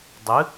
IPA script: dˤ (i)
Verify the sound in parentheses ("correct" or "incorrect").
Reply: incorrect